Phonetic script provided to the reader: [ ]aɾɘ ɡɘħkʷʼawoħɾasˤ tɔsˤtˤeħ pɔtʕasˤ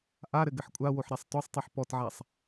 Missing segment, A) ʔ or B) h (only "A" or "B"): A